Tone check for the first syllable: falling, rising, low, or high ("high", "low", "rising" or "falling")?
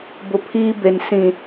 low